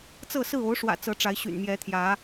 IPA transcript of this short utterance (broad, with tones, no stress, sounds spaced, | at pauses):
t͡s ɤ˥˨ s ɹ̩˥˨ o˨˦ ʊ̯ ʂ w ä̰˨˩ t͡s ɤ˨˦ ʈ͡ʂ a˨˦ ɪ̯ ɕ y̰˨˩ n m j ɛ˨˦ t̪ʰ j ä˨˦